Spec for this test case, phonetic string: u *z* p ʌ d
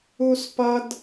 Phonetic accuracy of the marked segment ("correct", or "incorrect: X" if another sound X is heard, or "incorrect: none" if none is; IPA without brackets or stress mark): incorrect: s